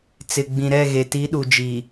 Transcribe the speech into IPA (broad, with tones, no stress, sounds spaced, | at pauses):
t͡s ɪ˨ ɡ͡b ĩ˨ ɾ ɛ˦˨ ɣ e˨ t i˨˦ ɗ u˨ d͡ʒ iː˨